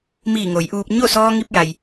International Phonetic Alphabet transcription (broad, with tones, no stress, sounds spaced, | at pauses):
m iː˧˩ ŋ o˩˧ j ʔ uː˧ p̚ ɲ o˥˨ s ɔː˧ ŋ i˧ p̚ j a˩ j